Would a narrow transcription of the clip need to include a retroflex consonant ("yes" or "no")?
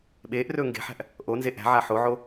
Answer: no